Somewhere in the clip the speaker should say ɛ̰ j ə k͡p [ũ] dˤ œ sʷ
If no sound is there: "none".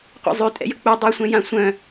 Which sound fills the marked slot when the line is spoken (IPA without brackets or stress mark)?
u